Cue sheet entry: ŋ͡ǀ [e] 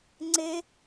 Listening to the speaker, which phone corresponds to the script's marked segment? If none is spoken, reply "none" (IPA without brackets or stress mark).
e